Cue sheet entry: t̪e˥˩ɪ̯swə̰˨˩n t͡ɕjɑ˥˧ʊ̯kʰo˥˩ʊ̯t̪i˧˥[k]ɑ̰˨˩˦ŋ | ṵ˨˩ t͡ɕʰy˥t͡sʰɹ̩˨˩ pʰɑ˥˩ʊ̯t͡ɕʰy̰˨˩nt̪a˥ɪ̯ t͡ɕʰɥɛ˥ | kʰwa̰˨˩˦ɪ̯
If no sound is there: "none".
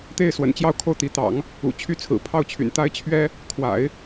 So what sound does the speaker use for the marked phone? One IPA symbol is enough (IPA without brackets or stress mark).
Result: t̪